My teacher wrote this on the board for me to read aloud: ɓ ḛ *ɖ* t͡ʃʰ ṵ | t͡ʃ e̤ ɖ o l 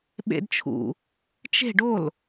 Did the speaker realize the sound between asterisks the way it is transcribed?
no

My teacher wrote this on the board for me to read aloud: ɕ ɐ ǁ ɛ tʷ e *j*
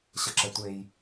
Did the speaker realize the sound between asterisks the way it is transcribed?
yes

